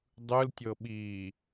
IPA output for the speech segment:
dˤɯltʲɤɓiː

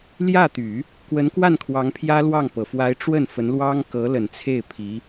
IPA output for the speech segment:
ljä˥˩t̪y˨˩˦ | kwə˧˥nkwa˥˩nkʰwɑ˧˥ŋ pʰjä˥lwɑ˥˩ŋpɤ˨˩ fwa˧˥ɪ̯ ʈ͡ʂwə˥˩nfə˧˥nlwɑ˥ŋ kɤ˧˥lə˨˩nt͡sʰe˥˩ɪ̯pʰi˧˥

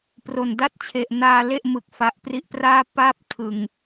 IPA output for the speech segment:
pro˨˩nda˥˩t̚t͡ɕʰe˨˩ʔ naː˧ le˥˩ʔmɯ˨˩k̚ fa˨˩ʔpri˦˥ʔpraː˥˩ pa˥˩p̚ tʰɯ˨˩ŋ

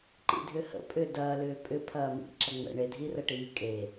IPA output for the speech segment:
ǃḭdʱʏhə̰ pʼʏːdɐːlʏː pʼʏpʰɐːmḭ ǁɐŋ͡mə̰ ɳedʱirɐʈiː kʼe

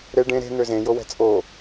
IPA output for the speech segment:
ɾe ɖẽ ɾe̤ n̪øzẽ jowɛ̤t͡sʼo

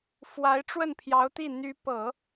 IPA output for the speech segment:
fwa˧˥ɪ̯ʈ͡ʂwə˥˩npʰjɑ˧˥ʊ̯t̪i˥˩ n̪y˧˥pɤ˨˩˦

